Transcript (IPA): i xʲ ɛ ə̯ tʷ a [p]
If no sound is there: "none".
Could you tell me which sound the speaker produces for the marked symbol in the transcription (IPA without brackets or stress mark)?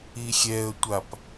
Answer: p